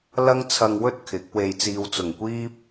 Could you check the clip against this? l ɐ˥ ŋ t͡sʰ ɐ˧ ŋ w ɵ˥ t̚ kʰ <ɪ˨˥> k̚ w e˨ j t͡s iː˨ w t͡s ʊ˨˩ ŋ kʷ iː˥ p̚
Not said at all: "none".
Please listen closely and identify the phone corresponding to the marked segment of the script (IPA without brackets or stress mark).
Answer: ɪ˨˥